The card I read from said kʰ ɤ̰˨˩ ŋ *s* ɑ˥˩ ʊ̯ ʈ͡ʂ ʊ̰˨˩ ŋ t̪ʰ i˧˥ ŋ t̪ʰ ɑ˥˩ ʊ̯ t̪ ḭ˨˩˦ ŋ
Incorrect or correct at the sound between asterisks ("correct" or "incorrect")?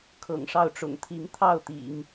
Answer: incorrect